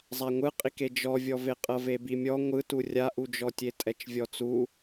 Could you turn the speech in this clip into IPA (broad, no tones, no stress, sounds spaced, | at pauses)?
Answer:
zˤ a ŋʷ ɯ qʼ i k e d͡ʒ ɔ vʲ ɔ v e qʼ ɤ v e b i mʲ ɔ ŋʷ ɯ t u rʲ a ʔ u d͡ʒ ɔ tʲ e tʼ ɛ t͡ʃ vʲ ɔ t͡s u